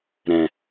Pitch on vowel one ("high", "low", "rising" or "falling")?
low